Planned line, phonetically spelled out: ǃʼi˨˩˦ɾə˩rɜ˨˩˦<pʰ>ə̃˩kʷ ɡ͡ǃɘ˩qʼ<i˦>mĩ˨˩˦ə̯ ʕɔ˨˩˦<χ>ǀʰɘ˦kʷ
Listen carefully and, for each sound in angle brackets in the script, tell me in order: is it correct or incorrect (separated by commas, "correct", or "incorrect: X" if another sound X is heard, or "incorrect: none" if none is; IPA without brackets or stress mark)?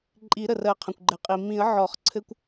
incorrect: qʰ, incorrect: i˩, correct